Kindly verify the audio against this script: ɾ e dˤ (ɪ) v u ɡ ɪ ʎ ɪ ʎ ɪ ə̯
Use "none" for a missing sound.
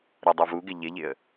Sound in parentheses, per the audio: i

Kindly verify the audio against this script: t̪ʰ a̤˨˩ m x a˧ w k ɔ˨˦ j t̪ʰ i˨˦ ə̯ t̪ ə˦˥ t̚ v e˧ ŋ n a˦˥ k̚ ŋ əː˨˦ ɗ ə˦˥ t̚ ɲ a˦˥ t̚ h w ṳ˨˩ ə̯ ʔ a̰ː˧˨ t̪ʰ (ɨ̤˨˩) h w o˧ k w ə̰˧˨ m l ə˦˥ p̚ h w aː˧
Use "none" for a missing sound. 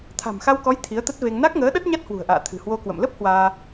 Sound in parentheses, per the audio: ɨ̤˨˩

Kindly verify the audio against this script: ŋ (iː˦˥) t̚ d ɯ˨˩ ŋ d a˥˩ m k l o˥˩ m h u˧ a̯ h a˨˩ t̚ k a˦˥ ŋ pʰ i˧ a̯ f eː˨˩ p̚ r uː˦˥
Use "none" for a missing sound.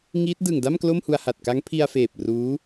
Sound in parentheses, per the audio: iː˦˥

